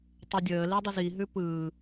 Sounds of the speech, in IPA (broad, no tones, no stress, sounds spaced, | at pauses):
tˤ ə dʲ əː l i dˤ ə z i ɦ ʉ p ɯː